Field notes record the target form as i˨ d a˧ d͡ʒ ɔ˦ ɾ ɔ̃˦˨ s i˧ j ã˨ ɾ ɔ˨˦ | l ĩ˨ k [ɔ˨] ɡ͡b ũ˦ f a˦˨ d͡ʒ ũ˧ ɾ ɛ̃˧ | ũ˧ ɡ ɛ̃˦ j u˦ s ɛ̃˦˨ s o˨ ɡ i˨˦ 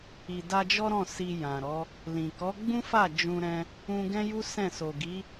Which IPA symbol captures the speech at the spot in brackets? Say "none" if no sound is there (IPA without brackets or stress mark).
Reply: ɔ˨˦